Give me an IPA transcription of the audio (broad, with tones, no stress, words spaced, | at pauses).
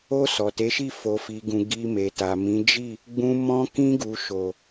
o˧ sɔ˨te˨˦ʃi˦˨ fo˨fi˨ɡũ˨ ɡi˧ me˨ta˨ mĩ˨˦d͡ʒi˦˨ | ɡ͡bũ˧ mɔ̃˧kĩ˧ɡu˨ ʃo˨